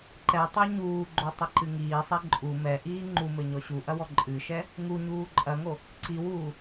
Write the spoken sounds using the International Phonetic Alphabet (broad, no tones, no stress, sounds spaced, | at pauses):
ǃ ɛ tˤ o ɲ uː ɡ͡ǃ o tˤ ɘ ǃ ɨ ŋ iː sˤ ɛ ǃʼ u m ɛ ʔ iː ŋ͡ǃ u m ɘ ɲ ɔ ɕ u ʔ ɐ w ɔ ǃʼ ɨ ʃ ɛ | ŋ u ɲ uː ǃʼ ɐ ŋ o | ǀ i w uː